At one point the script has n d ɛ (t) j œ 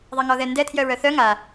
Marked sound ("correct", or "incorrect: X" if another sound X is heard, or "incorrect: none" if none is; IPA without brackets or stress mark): incorrect: tʰ